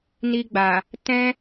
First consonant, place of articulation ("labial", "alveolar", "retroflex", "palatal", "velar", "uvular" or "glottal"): alveolar